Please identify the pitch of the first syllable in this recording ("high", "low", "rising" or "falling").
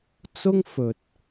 high